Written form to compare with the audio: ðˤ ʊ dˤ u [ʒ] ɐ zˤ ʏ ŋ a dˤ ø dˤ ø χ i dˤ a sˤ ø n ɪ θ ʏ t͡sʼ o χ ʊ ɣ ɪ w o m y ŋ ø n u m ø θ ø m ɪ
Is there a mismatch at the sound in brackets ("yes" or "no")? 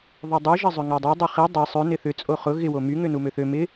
no